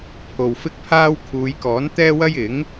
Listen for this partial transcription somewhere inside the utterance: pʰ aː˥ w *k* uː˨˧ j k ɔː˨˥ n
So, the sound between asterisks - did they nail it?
no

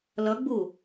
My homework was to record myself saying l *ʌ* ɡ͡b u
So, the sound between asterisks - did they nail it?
yes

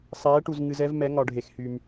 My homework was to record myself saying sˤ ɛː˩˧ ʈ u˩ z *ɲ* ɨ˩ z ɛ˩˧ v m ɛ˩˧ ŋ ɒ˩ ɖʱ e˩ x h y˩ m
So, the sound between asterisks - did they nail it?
no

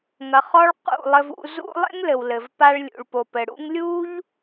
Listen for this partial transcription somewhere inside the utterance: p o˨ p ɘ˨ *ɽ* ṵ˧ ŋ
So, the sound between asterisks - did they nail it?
yes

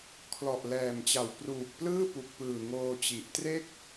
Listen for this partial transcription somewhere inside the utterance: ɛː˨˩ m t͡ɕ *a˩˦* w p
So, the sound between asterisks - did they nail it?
no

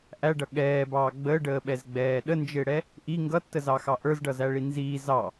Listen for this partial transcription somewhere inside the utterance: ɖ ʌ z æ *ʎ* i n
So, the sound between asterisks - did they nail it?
no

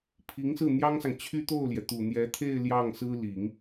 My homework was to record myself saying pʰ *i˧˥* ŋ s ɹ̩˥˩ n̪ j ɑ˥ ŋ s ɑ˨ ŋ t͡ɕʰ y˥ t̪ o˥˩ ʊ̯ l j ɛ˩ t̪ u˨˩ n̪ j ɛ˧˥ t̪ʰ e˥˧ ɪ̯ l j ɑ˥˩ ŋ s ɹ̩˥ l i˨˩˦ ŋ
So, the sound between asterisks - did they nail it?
yes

